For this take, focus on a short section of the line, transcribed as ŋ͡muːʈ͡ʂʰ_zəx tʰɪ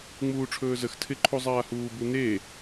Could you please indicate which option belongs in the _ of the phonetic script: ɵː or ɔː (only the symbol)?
ɵː